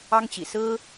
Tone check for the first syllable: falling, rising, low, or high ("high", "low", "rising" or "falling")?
high